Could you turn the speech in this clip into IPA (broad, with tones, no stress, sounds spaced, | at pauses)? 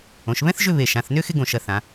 õ˩˧ ʃ β ɛ̃˥ θ ʒ ʏ˥˧ β e˧˩ ʃ ã˩˧ θ n ʏ˥ x ɪ˥ ɡ õ˧˩ ʃ ɐ˧ θ ã˩˧